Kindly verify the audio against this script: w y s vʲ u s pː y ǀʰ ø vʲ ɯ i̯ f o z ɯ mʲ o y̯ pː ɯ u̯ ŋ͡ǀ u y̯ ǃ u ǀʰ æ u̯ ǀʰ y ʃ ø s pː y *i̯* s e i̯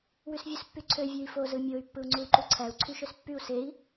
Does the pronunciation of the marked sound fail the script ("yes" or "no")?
yes